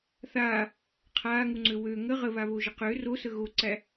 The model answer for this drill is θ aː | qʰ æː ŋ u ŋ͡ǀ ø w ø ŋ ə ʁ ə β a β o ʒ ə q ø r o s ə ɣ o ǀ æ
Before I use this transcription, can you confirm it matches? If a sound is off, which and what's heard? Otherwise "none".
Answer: æː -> aː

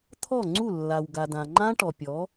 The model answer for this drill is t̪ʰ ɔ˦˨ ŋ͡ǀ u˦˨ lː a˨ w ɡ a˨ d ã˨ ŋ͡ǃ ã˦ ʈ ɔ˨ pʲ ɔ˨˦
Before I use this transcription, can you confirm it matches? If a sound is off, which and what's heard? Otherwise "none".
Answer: none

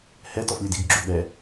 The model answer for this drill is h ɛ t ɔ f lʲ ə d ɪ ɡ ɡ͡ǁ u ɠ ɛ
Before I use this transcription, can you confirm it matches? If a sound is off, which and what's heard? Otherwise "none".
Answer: ɪ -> i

